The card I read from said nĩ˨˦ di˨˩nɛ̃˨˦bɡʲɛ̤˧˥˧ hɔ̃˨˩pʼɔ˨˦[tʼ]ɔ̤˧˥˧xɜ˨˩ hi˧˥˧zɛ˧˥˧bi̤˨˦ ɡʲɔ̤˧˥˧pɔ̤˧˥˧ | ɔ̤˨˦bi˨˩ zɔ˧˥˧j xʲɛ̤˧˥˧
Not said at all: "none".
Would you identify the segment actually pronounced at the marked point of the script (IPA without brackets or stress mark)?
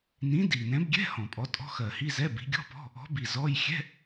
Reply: tʼ